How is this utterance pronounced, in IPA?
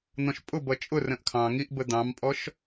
n̪ ɔ̃ ʃ pʼ ʊ b ʌ t͡ʃʼ ʊ r ə̃ ʔ kʰ ɑ̃ ŋ i ʔ b ə d̪ ɑ̃ m pʼ ɔ ʃ

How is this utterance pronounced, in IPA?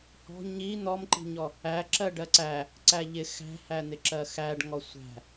h ɔ̤ ɲ i n̪ ɔ m ǃ i̤ ɲ ɔ | æ ǁ ɜ ɖ ɜ ǀ æ | ǀ æ ʎ ɪ x æ̤ h æ n̪ ɪ ǁ ɜ x æ ɖ ŋ ɔ sʷ æ̤

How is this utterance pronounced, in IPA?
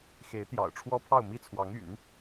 x e˧˥ ɪ̯ t̪ j ɑ̰˨˩ ʊ̯ ʈ͡ʂʰ w ɔ˥ pʰ ɑ˥˧ ʊ̯ m i˥˩ t͡sʰ w ɑ˧˥ ŋ y̰˨˩˦ n

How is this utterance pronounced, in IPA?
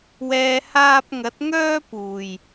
w ɛː˨ h aː˧ p̚ ŋ ɐ˨˥ t̚ ŋ œː˥ p uː˨˩ j

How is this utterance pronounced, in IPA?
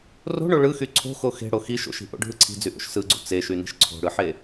r o̤ ɳ o ɭ ɯ x y ǀʰ o̤ x o x e̤ ɽ o x i ʃ o̰ ʃ i̤ ʔ o̰ ɖʱ ɯ ǀʰ i̤ d͡z y ʔ o̰ ʃ s ɯ ɡ͡ǀ ṵ t͡s e ʃ y n i̤ ʃ ǀʰ o̤ ɽ ɯ ħ e

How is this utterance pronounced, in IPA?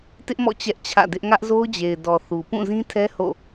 t ɪ˦ ʔ m ɔ̰˦˨ t͡ɕ ɛ˦ ʔ t͡ɕʰ ä̰˦˨ d ɪ˦ ʔ ŋ ä˦ ʔ z o˦ ʊ̯ d͡ʑ e˨ ɪ̯ d ɔ˨ θ u˨ p ũ˦˨ z ĩ˦ tʰ ɛ˦ h o̰˦˨

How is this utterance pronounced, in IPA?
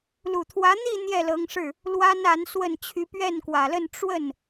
l u˨˩ t̪ʰ w ä˧˥ n̪ i˥˧ n̪ j ɛ˥˩ l ɤ˧˥ ŋ ʂ ɻ̩˥˩ | l w a˥ n a˧˥ n s w ə˥˩ n t͡ɕʰ y˧˥ p ɥ ɛ˥˩ n k w ä˨˩ l ə˥˧ n ʈ͡ʂ w ə˥˩ n

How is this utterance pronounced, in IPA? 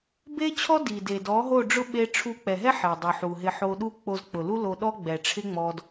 b e˦ t͡ɕʰ ɔ˦ d i˨ d e˨ d ɔ˨˦ ɦ o˦˨ ɖ͡ʐ ʊ˦ ɓ e˦ ʈ͡ʂʰ u˧ k͡p ɛ˨ ɦ ɛ˦ ħ e˨ dˤ u˨ ħ u˨ ɦ ɪ˧ ħ o˧ ɗ u˦ k͡p o˧ z k͡p ʊ˨ l u˦ l o˧ ɗ ɔ˦ ɡ͡b ɛ˨ ʈ͡ʂʰ ɪ˦ ŋ͡m ɔ˧ d

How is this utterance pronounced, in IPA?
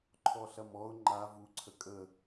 ǃʰ ɔ ɬ ɐ m ɔ ʊ̯ ŋ͡ǃ a v u ǀʰ ə kʼ ə

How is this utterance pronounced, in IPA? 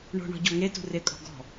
ɳ o̤ ɳ ɔ̤ ɟ ɔ ŋ e t ṳ r ɪ kʼ ɔ̤ ɡ ɔ̤

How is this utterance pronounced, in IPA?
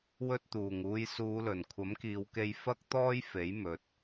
w ɵ˧ t̚ t̪ uː˨˩ ŋ uː˨˧ j s uː˨˧ l ɵ˨˩ n kʷʰ ɐ˨˥ m k iː˨˧ w k e˧ j f ɐ˥ k̚ t̪ ɔː˥ j f e˨˥ j m ɵ˨ t̚

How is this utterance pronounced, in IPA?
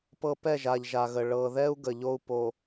p ɤ˨ p ɛ˦˨ ʒ a˨ ʎ ʒ a˨ ɣ ə˨ ɭ ɤ˨ ð ɛ˦ u̯ ɡ ə˨ ʎ o˦ u̯ p o˨

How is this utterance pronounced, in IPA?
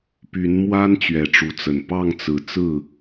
p y˨˦ n m w a˦ n t͡ɕ ɥ ɛ˨˩ ʈ͡ʂ u˨˦ t͡s ə˨˩ n p ɑ˥˨ ŋ t͡s ɹ̩˨˩ t͡s ɹ̩˥˨

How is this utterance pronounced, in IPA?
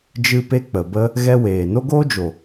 d͡ʒ ɨ˦ p e˦ k͡p ə˨ b ə˦ | ɣ ɛ˦ w eː˨ n o˦ ɡ oː˦ d͡ʒ o˨

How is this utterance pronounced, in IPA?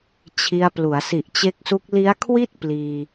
t͡ɕʰ i˧ a̯ p l u˩˦ a̯ s i˨˩ ʔ t͡ɕ e˦˥ k̚ s u˦˥ k̚ l i˦˥ a̯ kʰ w i˥˩ t̚ p l iː˧

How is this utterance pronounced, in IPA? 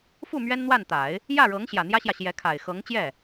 f u˥˩ m ɥ ɛ˥ n n̪ w a˥˩ n t̪ a˨˩˦ ɪ̯ | j ä˥˩ ɻ ɤ˧˥ ŋ ɕ j ä˨˩ n̪ j ä˥ ɕ j ä˨ ɕ j ɛ˧˥ kʰ a˨˩ ɪ̯ x ɤ˧˥ ŋ t͡ɕ j ɛ˥˩

